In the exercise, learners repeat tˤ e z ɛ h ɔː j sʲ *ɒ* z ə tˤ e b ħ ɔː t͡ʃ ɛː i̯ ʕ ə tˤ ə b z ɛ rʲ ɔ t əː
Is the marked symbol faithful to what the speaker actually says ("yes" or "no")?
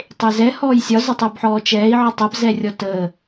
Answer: yes